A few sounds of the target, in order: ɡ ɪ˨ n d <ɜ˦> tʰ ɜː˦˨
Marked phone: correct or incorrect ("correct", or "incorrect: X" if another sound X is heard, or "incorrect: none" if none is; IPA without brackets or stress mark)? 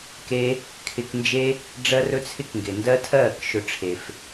correct